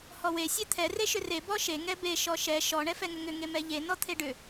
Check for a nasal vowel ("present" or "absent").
absent